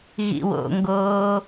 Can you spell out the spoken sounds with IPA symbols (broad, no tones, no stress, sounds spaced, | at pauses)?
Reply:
ɣ ḭ w o̰ ŋ ɡ oː